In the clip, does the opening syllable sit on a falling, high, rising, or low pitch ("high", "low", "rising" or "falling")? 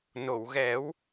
low